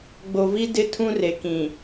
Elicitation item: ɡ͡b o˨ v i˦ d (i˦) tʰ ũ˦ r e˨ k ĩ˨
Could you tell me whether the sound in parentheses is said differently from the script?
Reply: yes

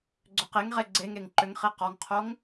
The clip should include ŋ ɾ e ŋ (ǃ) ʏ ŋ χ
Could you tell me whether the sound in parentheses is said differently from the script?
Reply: no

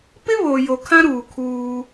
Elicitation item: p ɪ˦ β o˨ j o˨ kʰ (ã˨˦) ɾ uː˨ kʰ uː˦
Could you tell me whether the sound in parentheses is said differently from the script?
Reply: yes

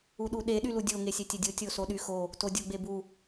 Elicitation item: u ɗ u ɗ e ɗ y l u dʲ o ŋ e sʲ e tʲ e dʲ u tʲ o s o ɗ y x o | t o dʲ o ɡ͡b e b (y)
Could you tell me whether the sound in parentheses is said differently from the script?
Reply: yes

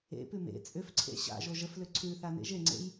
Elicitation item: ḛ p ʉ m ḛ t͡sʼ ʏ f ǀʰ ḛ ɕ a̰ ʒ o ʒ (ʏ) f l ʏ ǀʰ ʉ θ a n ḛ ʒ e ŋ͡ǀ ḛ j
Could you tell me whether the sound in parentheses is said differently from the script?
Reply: yes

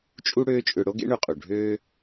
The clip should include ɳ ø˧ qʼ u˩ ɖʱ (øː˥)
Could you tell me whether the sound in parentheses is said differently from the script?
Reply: no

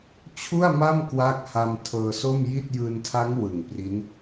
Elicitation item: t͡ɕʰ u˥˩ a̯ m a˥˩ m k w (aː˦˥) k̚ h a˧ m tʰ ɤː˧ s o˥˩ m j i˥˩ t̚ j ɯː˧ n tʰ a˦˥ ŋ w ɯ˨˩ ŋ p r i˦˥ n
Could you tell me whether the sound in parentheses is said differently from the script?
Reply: no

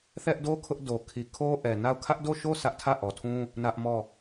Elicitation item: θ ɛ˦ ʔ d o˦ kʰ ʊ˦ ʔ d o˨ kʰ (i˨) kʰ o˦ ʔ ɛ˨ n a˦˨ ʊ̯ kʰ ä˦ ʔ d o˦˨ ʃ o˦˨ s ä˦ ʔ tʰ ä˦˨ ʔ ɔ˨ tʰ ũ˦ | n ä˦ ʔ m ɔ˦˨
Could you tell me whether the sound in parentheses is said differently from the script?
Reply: no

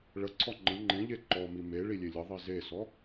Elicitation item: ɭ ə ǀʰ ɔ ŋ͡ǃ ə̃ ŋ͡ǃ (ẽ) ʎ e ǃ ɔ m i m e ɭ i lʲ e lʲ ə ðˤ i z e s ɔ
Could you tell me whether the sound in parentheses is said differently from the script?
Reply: no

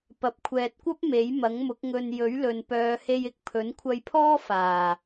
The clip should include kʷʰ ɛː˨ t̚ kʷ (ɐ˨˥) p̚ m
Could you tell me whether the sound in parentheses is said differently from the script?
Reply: yes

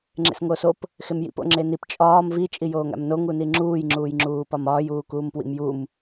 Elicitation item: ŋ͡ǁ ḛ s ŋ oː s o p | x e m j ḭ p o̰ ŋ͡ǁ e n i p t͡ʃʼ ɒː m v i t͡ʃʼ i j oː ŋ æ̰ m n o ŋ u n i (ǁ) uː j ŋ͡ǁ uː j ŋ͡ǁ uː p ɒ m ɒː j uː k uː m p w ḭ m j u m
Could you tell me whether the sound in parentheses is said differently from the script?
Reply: yes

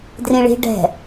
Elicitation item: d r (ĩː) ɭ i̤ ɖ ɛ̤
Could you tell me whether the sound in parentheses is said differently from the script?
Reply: yes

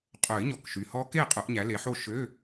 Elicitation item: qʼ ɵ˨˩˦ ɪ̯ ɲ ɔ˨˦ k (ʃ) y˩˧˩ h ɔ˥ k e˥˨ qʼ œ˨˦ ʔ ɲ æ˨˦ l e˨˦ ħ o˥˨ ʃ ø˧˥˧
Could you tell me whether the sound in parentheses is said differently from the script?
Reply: no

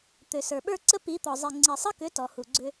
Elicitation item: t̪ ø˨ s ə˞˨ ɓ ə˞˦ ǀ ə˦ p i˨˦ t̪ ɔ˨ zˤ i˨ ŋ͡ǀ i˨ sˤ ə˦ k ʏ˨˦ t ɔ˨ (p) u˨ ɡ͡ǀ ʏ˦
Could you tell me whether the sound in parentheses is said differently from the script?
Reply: yes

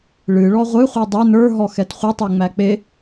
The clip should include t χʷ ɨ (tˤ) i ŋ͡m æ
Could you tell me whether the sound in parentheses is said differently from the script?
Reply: no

